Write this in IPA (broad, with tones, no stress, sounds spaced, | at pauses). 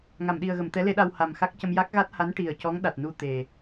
ŋ a˨˩˨ m ɗ i˨˩ ə̯ ɣ ə˨˩˨ m t̪ ɛ˧˥ l e˧˥ ɗ a˧ w h a˨˩ m x a˦˥ k̚ c ə˧ m j a˦˥ k̚ ɣ a˦˥ t̚ h a˧˥ n ʈ i˨˩ ə̯ c ɔ˧˥ ŋ ɗ a˨˩ t̚ n u˧ t̪ e˨˩